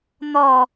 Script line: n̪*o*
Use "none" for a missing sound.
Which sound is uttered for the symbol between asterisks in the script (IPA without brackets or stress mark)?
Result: ɔ